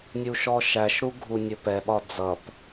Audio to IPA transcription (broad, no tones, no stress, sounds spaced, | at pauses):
nʲ u ʃ ɔ ʃ æ ʃ ɾ u ɡʱ u nʲ ʊ p ɛ ɓ ɒ d͡z ʌ p